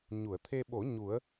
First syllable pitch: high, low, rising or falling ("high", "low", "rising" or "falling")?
low